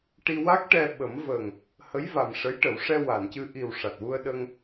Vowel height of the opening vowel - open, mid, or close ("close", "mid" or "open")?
close